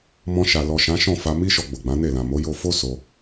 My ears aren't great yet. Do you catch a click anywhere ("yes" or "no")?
no